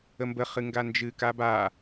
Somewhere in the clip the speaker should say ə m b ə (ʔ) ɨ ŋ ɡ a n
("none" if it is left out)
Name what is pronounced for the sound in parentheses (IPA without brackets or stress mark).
χ